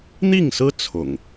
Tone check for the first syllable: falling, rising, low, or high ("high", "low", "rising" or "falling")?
falling